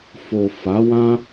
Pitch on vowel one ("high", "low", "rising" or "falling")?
low